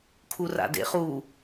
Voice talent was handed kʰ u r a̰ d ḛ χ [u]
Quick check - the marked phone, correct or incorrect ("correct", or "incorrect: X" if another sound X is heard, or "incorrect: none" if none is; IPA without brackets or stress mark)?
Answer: correct